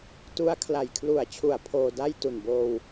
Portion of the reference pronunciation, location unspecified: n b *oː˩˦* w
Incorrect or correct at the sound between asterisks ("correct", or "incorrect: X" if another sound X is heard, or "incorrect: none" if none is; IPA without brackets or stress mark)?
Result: incorrect: oː˧